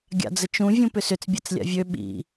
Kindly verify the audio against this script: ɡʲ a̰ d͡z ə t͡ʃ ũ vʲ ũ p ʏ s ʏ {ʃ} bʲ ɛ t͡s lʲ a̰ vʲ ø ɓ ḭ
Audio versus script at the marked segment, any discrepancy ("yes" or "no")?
yes